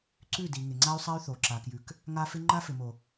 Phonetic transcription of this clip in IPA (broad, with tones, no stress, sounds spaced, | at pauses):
ǀ ʉ˦˨ d i˨ ŋ ɪ˨ ŋ͡ǀ a˦ y̯ sˤ a˦ y̯ θ o˨ ǁ a˨ k j ʉ˨ k | ŋ a˦ f ɪ˦ ŋ͡ǃ a˦ f ɪ˨ m o˨